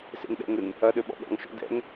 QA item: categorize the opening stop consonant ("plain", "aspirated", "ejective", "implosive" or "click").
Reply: implosive